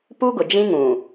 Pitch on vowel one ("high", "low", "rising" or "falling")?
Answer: high